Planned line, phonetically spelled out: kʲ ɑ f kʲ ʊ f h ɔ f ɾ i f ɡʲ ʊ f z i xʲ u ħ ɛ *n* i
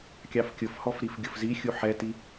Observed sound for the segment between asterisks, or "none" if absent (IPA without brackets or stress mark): t